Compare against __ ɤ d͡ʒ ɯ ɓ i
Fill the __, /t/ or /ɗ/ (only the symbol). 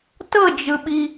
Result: t